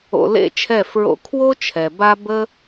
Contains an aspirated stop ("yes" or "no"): yes